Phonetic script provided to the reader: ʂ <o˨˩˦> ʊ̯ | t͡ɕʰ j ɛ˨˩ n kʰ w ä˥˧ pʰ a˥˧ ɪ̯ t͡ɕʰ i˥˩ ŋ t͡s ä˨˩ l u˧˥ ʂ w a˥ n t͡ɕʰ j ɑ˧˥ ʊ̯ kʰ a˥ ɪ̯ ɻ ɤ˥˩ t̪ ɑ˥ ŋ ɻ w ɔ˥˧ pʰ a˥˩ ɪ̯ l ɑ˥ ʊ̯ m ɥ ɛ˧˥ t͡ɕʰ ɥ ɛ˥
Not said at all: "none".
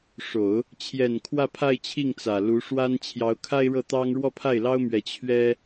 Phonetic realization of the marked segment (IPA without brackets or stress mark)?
o˨˩˦